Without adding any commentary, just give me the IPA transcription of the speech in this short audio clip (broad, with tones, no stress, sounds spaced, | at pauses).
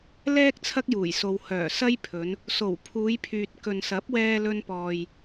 l ɛː˥ k̚ t͡sʰ ɐ˥ k̚ j uː˨˩ j s o˨ w h œː˨˩ s ɐ˥ j pʰ ɵ˨˧ n | s o˨˩ w pʰ uː˨˧ j pʰ yː˨ t̚ k ɵ˨ n s ɐ˨˥ p̚ w ɛː˧ l ɵ˧ n p ɔː˨ j